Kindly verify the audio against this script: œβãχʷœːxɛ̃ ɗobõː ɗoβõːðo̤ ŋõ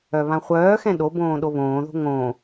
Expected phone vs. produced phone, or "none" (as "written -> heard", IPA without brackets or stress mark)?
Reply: none